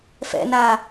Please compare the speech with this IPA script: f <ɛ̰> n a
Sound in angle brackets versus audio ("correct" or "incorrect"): correct